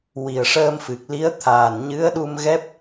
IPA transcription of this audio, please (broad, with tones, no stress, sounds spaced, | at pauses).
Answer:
w i˨˩ ə̯ ʂ əː˧ m f ɨ˨˩ k̚ l i˧˥ ə̯ t̪ʰ aː˨˩ n ɲ ɨ˧˥ ə̯ ɗ u˧ m ɣ ɛ˦˥ p̚